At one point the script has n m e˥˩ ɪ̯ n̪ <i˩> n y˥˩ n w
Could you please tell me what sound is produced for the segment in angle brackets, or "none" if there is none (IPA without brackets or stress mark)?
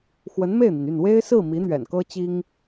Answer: i˩